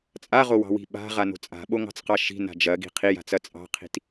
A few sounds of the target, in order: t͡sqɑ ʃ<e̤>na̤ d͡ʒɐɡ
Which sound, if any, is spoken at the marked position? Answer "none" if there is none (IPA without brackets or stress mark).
i̤